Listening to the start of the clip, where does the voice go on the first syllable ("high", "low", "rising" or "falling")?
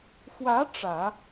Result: rising